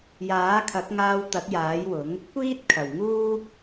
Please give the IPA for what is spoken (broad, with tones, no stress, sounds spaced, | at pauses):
j aː˨˥ kʰ ɐ˨˥ k̚ ŋ aː˧ w t̪ ɐ˨˥ k̚ j aː˨˥ j w ʊ˨˥ ŋ | kʷ iː˥ t̚ kʰ ɐ˨˩ w ŋ uː˥